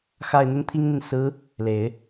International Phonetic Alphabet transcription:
x a˥˩ ɪ̯ n̪ ə˥ n t̪ʰ i˥ ŋ n̪ i˨ n s ɹ̩˧˥ | l e˨˩˦ ɪ̯

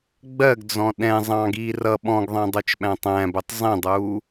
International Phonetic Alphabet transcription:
ɡ͡b ɜ ɡ d͡z ɔ̃ ɗ ɛ̃ zˤ ɑ̃ ɡ iː r ʌ ɓ ɔ̃ ɡ ðˤ ɛ̃ dˤ u t͡ʃ ɓ æ̃ tˤ æ̃ b ʊ tˤ zˤ ĩ dˤ uː

